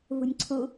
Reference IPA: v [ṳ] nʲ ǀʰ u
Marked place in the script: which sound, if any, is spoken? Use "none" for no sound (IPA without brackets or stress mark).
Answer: ṳ